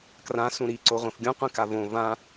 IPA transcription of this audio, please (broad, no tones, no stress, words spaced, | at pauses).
krã sũɾi ǀoʁʷĩfɡʲũ qʷĩkavõ vã